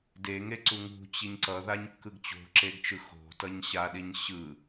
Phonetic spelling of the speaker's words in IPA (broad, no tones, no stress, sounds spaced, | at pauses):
d e ŋ e ǀ u ŋ ṳ t͡ɕ i ɲ ǀ ʌ ð a ɲ kː ɯ ɡ t͡ɕ o̤ ǁ e ɡ t͡ʃ ɯ x o̤ t ʌ ɲ ɕ a ɗ i ɲ ɕ ɯ